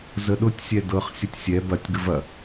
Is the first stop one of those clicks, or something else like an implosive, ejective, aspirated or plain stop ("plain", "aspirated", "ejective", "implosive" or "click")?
implosive